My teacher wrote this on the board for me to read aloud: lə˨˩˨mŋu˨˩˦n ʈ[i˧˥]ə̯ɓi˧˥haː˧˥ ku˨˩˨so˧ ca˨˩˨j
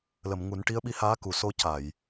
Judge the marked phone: correct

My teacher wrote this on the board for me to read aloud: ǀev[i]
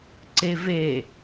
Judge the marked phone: incorrect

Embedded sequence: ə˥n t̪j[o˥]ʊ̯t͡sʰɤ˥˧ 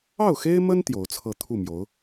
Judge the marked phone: incorrect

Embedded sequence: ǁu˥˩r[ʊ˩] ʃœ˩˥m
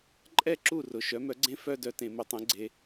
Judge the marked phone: correct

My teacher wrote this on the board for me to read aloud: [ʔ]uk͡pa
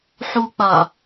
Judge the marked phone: incorrect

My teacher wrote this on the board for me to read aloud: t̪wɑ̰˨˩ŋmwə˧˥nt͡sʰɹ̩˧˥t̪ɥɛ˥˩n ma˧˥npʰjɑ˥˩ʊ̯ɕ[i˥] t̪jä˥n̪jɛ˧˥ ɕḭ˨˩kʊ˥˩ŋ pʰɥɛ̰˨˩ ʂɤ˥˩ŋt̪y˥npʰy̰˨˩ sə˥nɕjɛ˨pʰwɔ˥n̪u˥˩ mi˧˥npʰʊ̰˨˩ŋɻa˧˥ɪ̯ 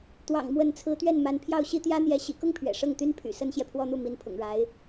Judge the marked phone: correct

